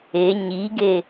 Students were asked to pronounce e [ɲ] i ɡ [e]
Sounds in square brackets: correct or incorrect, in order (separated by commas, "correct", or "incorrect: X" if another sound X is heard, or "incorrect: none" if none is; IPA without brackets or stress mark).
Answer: correct, correct